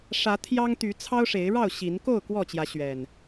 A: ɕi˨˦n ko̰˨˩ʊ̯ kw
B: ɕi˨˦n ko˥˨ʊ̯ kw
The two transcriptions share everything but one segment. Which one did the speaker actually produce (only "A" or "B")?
B